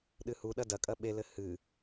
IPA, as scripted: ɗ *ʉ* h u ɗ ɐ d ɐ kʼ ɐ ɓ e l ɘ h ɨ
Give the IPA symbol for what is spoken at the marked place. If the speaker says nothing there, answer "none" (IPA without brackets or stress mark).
ɨ